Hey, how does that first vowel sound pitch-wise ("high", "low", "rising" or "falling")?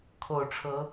low